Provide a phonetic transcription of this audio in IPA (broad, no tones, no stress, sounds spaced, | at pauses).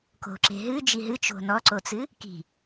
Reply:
k o̤ ǁ e̤ ɦ ɨ d͡ʒ i ɦ ɨ t͡ʃ o̤ n ɔ ǀ o t͡s ɨ | k i̤